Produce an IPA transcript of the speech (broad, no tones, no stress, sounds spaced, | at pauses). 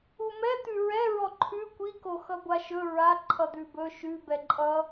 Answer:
u m ɛ t̪ ʉ ɹ ɛ ɹ ɔ ǃʰ ʉ kʷ i k o x ʌ ɡʷ a ʃ ɵ ɹ a ǃʰ ʌ d̪ ʉ b ɵ ʃ ʉ b ɛ ǃʼ ʌ